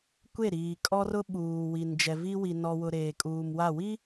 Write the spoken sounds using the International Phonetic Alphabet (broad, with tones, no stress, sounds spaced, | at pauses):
kʷ e˦˨ ɾ iː˨ kʼ ɔ˦ r ʊ˦ ɓ uː˨ w i˨ n d͡ʒ ɛ˨ v i˦ w i˨ n ɔ˨ w ʊ˨ ɾ eː˨ kʼ uː˨ m w a˦˨ w i˦